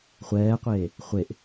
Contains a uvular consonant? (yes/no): yes